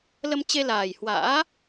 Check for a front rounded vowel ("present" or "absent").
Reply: absent